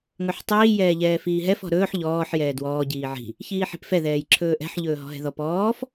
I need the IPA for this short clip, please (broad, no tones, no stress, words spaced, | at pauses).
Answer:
ŋɵħtˤiː jɛːʎɛːfiːɦɛf ɔ̤ɾɵːħ ʎɔːħ jɛːdwɔː ɟiːʕi̤ | çiːħi̤pfɛ ðɛːjǁʰɵːʔɛ̤ħ ʎɵːɦɔ̤ɦɛ̤ðɔp ɔːf